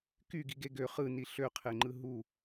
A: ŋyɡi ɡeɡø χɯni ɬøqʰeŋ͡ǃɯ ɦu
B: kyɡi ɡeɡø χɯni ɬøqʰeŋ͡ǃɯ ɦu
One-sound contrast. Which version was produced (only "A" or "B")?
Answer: B